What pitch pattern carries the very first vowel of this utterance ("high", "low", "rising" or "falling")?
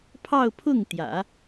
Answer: falling